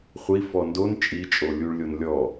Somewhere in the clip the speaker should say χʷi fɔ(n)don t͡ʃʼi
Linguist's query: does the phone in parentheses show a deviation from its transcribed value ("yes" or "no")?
no